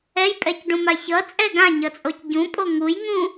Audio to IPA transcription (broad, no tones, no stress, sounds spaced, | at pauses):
ɛ j pʼ ɛ c ɖ ũ m a ç ʌ t͡sʼ ɛ ɡ ã ɲ ʌ t͡sʼ o c ɟ ũ pʼ o ŋ u j ŋ ũ